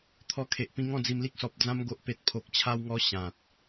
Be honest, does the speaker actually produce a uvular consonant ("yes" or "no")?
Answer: no